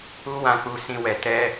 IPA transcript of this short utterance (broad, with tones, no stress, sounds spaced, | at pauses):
u˦ w ã˧ k͡p u˧ s ĩ˧ w ɛ˨ t ɛ˧